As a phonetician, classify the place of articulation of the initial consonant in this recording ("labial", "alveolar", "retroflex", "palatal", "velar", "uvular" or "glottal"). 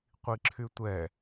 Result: uvular